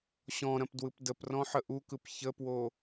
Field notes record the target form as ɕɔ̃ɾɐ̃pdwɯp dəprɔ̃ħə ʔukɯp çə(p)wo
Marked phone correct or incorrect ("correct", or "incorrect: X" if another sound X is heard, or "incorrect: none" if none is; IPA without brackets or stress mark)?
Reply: correct